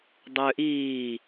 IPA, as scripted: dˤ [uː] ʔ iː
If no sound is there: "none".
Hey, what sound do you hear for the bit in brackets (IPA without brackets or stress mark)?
ʏː